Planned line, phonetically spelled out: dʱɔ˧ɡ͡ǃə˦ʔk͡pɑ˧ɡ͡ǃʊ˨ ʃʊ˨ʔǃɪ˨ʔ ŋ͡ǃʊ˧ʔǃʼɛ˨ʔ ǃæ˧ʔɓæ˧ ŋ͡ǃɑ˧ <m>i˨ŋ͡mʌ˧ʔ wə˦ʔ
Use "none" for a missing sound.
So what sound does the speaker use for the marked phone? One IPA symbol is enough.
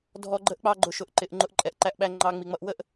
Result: ŋ͡m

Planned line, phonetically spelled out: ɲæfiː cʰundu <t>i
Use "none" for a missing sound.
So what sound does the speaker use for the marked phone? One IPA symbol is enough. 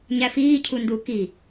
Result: k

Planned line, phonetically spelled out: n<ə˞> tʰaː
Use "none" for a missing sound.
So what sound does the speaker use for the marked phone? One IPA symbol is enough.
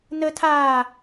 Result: ə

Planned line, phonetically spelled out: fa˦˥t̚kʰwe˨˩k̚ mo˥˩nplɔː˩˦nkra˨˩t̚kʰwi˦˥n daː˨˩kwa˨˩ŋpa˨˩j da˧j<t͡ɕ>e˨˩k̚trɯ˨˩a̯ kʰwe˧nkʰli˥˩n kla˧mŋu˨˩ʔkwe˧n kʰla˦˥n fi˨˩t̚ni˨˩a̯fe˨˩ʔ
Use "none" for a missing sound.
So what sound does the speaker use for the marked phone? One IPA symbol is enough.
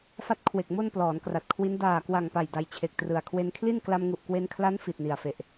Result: t͡ɕʰ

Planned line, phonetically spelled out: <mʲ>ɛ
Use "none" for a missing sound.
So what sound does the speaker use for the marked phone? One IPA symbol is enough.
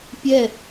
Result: pʲ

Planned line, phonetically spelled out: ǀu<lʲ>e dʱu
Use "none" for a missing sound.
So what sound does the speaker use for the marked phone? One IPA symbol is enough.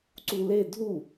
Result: l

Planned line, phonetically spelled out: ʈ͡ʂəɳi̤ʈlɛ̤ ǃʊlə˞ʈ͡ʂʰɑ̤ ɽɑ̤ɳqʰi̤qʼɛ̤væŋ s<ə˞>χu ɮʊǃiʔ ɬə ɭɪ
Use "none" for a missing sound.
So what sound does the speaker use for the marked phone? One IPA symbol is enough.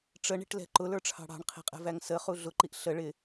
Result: ə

